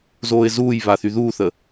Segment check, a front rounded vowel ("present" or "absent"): present